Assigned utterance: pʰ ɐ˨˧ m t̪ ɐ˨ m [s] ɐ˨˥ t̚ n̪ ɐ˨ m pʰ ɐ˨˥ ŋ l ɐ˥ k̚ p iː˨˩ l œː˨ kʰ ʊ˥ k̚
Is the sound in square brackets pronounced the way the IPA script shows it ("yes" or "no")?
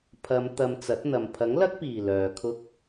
no